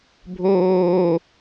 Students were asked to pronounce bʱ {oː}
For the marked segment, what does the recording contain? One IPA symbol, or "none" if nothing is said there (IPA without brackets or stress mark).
oː